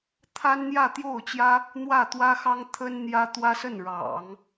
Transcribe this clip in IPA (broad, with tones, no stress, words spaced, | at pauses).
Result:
t̪ʰa˥nn̪jä˥˧t̪jo˥˩ʊ̯t͡ɕjä˥ | n̪wä˥˩t̪wä˥xɑ˥ŋ t̪ʰə˥nn̪jä˥ t̪wä˥sə˥˩nɻɑ̰˨˩˦ŋ